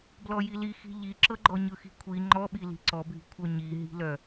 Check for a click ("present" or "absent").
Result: present